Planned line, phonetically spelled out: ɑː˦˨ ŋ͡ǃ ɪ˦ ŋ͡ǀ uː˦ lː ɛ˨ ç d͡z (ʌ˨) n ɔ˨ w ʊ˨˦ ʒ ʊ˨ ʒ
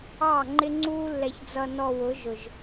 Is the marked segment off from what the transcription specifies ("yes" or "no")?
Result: no